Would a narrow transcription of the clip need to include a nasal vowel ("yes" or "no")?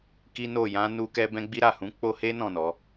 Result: yes